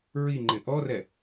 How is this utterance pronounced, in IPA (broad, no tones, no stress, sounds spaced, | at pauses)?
ɹ i ŋ͡ǃ ɪ ʔ ɔ r ɛ